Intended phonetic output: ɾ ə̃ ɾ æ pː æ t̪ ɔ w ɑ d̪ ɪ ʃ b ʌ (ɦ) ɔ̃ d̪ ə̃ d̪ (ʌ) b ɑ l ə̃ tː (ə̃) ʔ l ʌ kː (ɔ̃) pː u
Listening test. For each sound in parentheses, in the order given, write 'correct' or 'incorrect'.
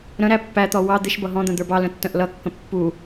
correct, incorrect, correct, incorrect

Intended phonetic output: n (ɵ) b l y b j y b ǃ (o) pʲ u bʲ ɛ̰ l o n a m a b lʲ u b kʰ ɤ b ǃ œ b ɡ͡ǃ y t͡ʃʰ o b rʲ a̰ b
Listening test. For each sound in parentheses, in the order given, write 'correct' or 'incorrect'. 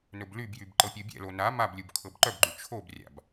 correct, incorrect

